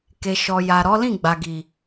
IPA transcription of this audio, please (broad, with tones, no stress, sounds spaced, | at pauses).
k e˨ ʃ ɔ˨ j a˨ ɾ ɔ˨˦ l ĩ˦˨ ɡ͡b a˨ ɡ i˨